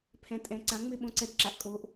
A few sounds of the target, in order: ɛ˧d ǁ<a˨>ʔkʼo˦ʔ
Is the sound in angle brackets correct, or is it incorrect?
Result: correct